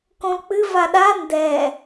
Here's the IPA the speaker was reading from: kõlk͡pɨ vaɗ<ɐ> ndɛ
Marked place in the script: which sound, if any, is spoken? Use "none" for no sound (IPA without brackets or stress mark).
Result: a